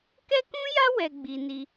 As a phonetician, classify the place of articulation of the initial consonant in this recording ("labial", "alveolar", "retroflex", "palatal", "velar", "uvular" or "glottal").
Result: velar